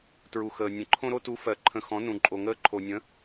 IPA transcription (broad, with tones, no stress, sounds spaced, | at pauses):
t ɹ u˨ x əː˨ nʲ ə̃˨ ǃʰ õ˦ ɾ o˦ t u˨˥ f ɜ˨ ǃʰ ə̃˨ x ɔ̃˨˥ n ũ˨ ǃʼ o˨ ŋ əː˦ ǃʰ o˨ nʲ ə̃˨˥